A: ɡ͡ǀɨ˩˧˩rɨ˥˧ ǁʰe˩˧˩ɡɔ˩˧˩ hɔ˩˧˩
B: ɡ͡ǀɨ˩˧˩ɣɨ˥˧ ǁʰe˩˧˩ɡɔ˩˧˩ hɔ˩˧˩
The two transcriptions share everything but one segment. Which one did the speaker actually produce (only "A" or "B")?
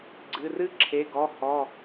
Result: A